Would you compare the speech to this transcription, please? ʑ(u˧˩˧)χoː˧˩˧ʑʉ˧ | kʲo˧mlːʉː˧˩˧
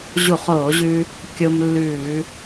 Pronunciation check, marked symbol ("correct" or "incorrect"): correct